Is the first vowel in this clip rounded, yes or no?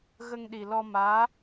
no